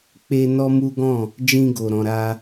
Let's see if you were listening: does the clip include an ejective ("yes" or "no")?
no